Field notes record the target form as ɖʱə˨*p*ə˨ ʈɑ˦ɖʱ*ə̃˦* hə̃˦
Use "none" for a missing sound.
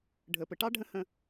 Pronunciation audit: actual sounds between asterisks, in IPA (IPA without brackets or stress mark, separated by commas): p, ə̃˦